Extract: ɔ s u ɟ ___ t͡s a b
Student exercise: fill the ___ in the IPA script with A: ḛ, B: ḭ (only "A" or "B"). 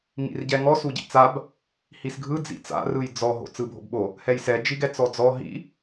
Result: B